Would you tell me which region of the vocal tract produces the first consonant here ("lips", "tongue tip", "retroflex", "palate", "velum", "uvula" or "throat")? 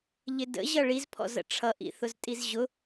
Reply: palate